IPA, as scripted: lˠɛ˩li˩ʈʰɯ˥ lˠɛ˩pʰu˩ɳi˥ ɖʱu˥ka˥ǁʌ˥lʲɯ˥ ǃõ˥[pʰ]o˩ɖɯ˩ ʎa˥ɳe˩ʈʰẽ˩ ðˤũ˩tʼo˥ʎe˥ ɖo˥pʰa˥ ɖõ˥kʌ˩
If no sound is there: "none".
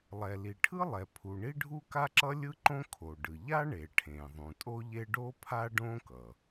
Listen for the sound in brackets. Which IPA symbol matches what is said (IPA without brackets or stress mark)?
kʰ